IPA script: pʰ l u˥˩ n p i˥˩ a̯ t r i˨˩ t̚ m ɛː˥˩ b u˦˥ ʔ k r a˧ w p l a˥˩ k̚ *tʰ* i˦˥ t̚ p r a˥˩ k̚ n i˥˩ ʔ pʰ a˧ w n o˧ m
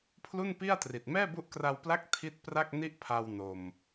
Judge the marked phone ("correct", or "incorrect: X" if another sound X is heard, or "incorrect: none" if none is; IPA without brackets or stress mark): correct